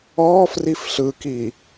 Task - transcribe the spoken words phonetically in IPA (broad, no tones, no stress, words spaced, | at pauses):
ɔːfrif ɬɯki